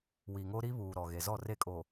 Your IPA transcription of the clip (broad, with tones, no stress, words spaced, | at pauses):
wi˨ŋo˦ ɾi˦βuː˨ɾɔ˨ ɣe˨zɔ˦˨re˦˨kʼo˨